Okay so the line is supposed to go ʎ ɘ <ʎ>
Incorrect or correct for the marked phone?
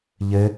incorrect: none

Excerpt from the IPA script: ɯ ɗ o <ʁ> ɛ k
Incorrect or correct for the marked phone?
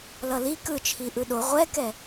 incorrect: ʁʷ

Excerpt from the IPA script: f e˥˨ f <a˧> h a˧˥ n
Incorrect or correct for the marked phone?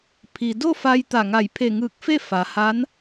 incorrect: a˩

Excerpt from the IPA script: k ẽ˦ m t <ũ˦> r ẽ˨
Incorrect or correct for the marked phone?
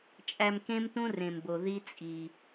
correct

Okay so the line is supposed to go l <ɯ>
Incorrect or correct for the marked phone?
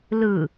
correct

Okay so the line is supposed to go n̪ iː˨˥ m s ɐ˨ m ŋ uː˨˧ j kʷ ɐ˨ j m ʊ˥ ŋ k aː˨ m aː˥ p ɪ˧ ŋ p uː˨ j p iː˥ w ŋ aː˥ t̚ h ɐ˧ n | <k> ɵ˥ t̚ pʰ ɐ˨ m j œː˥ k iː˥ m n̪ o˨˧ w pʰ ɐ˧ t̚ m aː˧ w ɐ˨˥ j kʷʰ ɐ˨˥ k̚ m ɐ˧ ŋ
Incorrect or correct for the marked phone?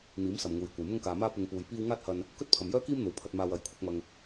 correct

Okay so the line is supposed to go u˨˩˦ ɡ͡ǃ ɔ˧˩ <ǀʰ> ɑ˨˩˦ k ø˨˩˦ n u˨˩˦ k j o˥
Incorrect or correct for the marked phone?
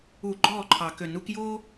incorrect: ǃʰ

